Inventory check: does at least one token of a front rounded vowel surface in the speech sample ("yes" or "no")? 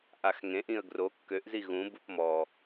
yes